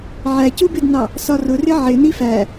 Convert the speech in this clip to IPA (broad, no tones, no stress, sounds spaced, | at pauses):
ʕ æ c u b ɪ d n ɑ | s ɒ r ʊ r ɪ ʕ ɪ n i f æ